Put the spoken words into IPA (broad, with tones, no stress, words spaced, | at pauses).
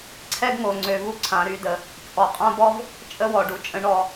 ǀʰɛ˦ɡŋo˨ŋ͡ǀø˨vu˦ ǀʰã˨ɾy˧də˨ | t͡sʼɔ˨qʼã˦bɔ˦v | t͡ʃʼə˦wɔ˨ ɖu˨t͡ʃʼə̃˨˦ ɳɔ˧